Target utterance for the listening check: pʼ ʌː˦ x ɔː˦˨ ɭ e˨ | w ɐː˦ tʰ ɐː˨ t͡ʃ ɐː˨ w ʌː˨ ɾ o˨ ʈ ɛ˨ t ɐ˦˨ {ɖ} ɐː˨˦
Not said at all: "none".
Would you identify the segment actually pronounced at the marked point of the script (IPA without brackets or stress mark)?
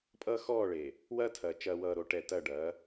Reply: ɖ